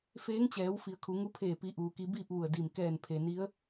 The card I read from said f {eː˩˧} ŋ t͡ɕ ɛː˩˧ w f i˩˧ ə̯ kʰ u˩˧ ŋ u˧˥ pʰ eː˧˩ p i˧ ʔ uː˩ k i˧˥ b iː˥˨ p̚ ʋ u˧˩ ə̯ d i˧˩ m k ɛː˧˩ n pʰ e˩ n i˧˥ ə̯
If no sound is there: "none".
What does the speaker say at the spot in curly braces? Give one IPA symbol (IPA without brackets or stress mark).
eː˧˥